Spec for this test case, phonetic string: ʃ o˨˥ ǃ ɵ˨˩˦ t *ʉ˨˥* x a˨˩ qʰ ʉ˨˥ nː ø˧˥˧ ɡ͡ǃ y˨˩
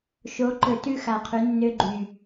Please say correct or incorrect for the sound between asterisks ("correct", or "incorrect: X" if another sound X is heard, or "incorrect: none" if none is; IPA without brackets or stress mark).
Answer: incorrect: ʉ˥˩